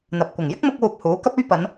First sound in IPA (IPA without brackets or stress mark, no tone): n̪